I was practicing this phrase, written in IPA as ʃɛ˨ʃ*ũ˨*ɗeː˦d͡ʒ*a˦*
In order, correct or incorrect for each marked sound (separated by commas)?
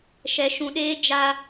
correct, correct